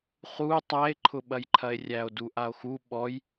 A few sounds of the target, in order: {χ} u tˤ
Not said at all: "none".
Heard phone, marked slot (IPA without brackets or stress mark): χ